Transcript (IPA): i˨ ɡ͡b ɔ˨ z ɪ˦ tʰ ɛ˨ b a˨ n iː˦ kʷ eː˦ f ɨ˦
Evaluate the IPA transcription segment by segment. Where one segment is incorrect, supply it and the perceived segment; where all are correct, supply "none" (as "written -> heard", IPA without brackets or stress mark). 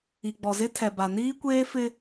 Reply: ɨ˦ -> ɪ˦